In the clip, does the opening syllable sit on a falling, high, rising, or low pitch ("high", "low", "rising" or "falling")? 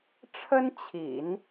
high